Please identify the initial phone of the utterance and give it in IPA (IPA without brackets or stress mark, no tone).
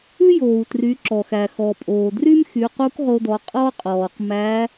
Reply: ʉ